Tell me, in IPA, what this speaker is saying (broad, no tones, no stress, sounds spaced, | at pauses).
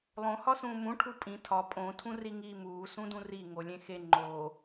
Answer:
lˠ õ h ɒ s ũː m ũ ʈʰ u pʼ ĩ tʰ ɒ pʼ õ tʰ ũ r i ŋ iː m uː s ũ d ũ r i ŋ o lʲ ẽ x e ŋ͡ǃ o